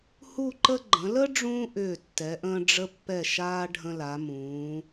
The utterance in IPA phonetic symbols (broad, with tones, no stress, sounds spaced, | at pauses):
h u˥˧ ǃ ə˥ ɡ͡ǃ ə̃˩˧ l ə˥ ɖ͡ʐ ũː˥ ʔ ʏː˧˩ tː ɛ˩˧ ʔ ə̃ː˧ ɖ͡ʐ ə˧ pː ɛ˧˩ ʃ aː˧ ɖʱ ə̃˧ l a˩˧ m ũː˩˧